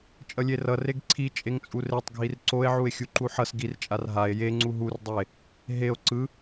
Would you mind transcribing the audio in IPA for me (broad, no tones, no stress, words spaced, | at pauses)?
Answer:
t͡ʃʼʌlʲerʌ reɡǀʰi t͡ʃʼeŋt͡sʼuretˤ ɡʱirǀoe̯ʕue̯ xʲuǃuħʌs ɡirt͡ʃʼar ɦae̯ jeŋ͡ǀu ɦurdˤoe̯ | ɦeo̯ ǀɯ